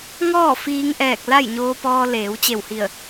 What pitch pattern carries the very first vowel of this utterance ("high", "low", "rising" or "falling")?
falling